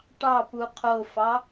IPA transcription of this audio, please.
ʈ ɑ p u qʰ o f ɑ

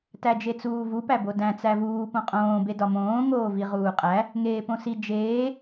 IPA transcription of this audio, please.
t æ d͡ʒ e t͡s uː v u p æ b o d æ̃ t͡s æ v uː p õ qʼ õː b e d ɒ m õː ŋ oː v i ʁ uː qʼ æ | ŋ eː p õ s i d͡ʒ eː

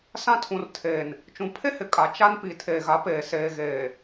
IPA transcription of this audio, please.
s ã˦ tʰ ũ˨ r tʰ eː˨ n | t͡ʃ ũ˨ pʰ e˦ h ɪ˨ kʼ a˨ t͡ʃ a˦ n p i˨ tʰ eː˨ ɣ a˨˦ p eː˨ s eː˨ ɣ eː˨

